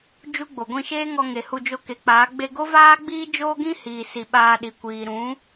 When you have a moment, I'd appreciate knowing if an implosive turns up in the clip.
yes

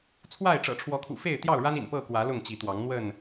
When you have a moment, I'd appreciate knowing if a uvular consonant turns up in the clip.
no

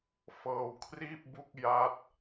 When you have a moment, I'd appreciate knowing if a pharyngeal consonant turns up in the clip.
no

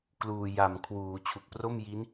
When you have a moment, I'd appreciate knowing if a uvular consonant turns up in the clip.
no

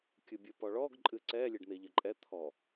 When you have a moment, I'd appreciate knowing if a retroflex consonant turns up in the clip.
yes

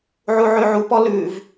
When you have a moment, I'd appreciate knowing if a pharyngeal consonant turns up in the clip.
yes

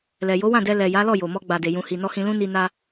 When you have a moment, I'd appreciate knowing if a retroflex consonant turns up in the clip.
no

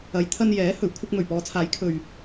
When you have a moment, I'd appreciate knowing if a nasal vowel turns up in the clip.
no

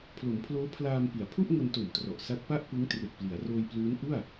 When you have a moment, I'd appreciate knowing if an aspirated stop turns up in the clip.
yes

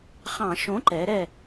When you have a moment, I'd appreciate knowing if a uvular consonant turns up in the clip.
yes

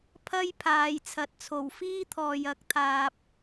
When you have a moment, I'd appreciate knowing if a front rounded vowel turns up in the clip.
no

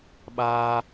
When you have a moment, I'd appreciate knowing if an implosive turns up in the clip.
yes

